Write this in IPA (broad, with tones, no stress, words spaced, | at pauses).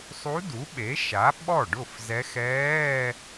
sˤu˧˥du˩˥ ɓe˩˥ʃa˩˥ ɓɔ˥˩ ɖʊ˥˩fzɛ˧˥ xɛː˧˥˧